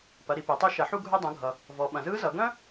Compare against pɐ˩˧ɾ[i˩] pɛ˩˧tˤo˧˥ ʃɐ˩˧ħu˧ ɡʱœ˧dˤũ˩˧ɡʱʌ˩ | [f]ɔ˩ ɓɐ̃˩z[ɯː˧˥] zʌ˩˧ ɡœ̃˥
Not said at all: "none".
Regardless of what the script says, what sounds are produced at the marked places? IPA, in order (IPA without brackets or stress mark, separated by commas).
i˩, v, ɯː˧˥